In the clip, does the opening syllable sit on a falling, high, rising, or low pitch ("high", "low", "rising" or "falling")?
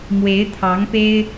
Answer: rising